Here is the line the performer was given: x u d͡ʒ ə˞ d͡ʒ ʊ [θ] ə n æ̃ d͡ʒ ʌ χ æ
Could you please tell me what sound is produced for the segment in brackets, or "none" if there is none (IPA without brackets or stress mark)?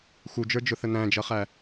θ